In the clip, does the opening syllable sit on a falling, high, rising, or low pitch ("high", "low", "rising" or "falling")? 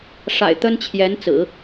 low